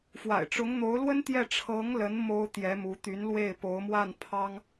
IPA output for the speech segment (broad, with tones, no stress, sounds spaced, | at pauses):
f w a̰˨˩ ɪ̯ ʈ͡ʂ ʊ˧˥ ŋ n̪ o˧˥ ʊ̯ l w ə˥ n t̪ j ɛ˥˩ ʈ͡ʂʰ ɤ˧˥ ŋ l ə˧˥ n m o˥ ʊ̯ t̪ j ɛ˧˥ m u˧˥ t̪ y˧˥ n l w e˥˩ ɪ̯ p o˧˥ ʊ̯ m w a˥˩ n pʰ ɑ˥ ŋ